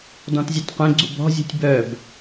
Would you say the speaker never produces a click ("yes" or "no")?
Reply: no